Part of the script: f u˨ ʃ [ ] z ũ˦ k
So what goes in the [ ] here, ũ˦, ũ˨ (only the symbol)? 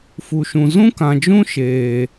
ũ˨